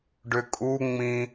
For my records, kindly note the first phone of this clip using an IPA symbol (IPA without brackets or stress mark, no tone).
ɖ